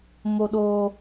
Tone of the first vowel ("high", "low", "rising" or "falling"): high